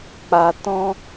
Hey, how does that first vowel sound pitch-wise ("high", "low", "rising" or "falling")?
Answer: low